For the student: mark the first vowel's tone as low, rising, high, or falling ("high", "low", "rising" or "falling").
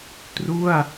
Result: falling